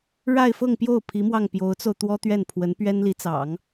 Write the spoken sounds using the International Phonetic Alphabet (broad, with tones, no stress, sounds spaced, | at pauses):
ɻ a˥˧ ɪ̯ f ɤ˥˧ ŋ p j o˥˩ ʊ̯ pʰ i˧˥ m w ɑ˥˩ ŋ p j o˧˥ ʊ̯ t͡s o˧ ʊ̯ t̪ w ɔ˥ t̪ ɥ ɛ˥˩ n pʰ w ə˧˥ n p ɥ ɛ˥ n l i˧˥ t͡s ɑ̰˨˩˦ ŋ